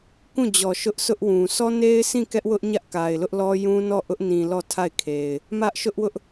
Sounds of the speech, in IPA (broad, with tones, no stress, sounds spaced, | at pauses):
k ũ˦˨ d͡ʑ ɔ˨ ʃ ʊ˦ ʔ s ʊ˦ ʔ w ũ˨ sʰ ɔ˦ n e˦ ɪ̯ s ĩ˦˨ k ɛ˦ ʔ w ʊ˦ ʔ ɲ ä˦ ʔ k a˨ ɪ̯ l ʊ˦ ʔ l ɔ˦ j ũ˦ n ɔ˦˨ ʔ ʊ˦ ʔ n ĩ˨ l ɔ˦˨ tʰ a˦˨ ɪ̯ kʰ e˨ ɪ̯ | m ä˦ ʔ ʃ ʊ˦ ʔ w ʊ˦ ʔ